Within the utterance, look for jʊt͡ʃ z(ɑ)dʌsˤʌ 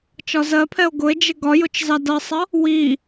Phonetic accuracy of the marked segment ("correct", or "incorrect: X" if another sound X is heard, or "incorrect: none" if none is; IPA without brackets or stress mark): correct